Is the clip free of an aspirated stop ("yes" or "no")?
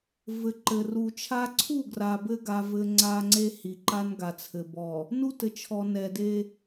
no